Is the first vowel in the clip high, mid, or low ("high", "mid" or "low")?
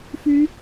high